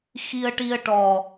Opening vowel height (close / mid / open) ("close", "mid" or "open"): close